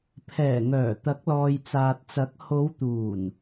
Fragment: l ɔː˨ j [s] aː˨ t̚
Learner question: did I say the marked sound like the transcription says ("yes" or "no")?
no